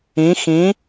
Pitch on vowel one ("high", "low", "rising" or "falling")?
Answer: rising